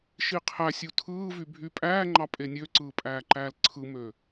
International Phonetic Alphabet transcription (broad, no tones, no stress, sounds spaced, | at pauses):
ʃ i qʰ æ sʲ u tʰ ɯː v y bʱ y pʼ æː ŋ͡ǃ ɑ pʼ e nʲ ø ǀ ɯː pʼ æː ǃ æː l ǀʰ ɯ m øː